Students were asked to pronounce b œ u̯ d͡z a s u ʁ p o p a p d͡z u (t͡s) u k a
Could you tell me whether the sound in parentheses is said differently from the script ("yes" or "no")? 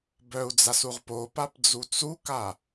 no